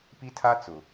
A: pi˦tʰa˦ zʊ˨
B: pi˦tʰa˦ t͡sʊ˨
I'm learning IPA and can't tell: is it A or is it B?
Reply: B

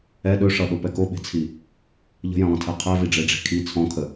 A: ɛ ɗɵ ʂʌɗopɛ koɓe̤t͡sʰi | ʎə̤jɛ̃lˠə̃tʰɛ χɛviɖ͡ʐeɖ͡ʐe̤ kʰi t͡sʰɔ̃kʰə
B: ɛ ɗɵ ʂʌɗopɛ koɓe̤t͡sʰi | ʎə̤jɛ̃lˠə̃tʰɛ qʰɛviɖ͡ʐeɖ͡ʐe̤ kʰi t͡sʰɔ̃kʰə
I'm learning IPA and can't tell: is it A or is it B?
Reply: B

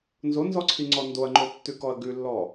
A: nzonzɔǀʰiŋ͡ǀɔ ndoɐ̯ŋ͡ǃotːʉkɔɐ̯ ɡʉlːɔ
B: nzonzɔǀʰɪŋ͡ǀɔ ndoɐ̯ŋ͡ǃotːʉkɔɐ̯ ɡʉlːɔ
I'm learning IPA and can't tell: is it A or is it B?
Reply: A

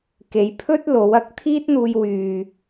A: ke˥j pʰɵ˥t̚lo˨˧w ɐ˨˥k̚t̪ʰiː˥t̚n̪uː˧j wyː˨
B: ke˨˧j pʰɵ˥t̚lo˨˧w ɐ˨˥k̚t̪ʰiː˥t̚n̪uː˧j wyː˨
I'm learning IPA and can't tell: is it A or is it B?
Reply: B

